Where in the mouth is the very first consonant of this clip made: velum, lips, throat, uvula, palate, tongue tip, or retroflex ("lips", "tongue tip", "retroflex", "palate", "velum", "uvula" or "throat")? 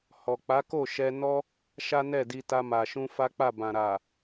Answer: throat